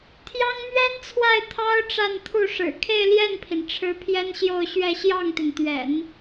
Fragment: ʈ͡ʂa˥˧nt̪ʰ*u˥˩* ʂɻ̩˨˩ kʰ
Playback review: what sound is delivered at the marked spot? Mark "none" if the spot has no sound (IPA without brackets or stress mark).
u˥˩